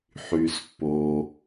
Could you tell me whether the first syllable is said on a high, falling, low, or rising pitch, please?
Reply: low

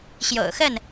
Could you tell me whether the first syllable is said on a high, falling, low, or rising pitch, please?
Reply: low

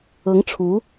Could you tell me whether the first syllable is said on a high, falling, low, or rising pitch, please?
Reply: rising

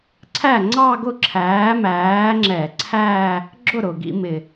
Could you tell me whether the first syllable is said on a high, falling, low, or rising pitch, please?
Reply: falling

